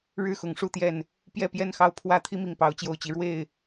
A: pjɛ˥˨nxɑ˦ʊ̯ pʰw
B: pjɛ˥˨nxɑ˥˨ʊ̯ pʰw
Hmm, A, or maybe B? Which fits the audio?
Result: A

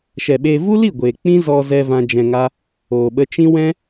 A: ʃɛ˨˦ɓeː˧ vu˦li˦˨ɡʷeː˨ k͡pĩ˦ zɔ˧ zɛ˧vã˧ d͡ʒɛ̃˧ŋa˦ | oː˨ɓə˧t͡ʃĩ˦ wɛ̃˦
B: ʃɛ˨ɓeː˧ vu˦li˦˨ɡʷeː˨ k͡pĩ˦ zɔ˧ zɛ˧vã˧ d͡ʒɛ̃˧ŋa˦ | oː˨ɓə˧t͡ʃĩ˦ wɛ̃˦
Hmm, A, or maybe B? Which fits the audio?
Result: B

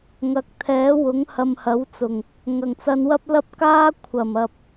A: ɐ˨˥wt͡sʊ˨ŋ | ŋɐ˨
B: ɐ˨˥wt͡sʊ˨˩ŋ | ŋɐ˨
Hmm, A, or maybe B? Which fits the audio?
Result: B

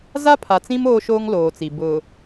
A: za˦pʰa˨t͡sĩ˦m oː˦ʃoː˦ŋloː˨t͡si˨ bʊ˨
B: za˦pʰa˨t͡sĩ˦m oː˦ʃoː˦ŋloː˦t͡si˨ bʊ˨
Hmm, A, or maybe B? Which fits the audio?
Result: A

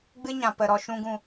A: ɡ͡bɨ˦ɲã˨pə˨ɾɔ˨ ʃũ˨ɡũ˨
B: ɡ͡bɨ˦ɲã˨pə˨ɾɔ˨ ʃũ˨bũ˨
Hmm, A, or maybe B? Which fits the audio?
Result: A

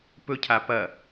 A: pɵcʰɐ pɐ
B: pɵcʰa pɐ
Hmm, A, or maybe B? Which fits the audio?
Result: B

